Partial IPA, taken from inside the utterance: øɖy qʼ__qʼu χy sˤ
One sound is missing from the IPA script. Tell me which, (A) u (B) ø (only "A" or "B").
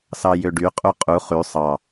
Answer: A